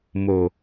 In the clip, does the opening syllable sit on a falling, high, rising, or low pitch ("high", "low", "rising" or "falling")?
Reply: low